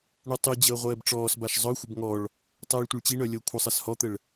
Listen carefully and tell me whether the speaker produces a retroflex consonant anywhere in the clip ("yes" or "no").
yes